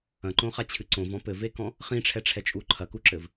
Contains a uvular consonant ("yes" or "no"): yes